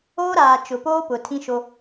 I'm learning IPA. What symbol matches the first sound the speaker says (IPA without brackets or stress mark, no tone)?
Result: oː